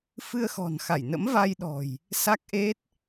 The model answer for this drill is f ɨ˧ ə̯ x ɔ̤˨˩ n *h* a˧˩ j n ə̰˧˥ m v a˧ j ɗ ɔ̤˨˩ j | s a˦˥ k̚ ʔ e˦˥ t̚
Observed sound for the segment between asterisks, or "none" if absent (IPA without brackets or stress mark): x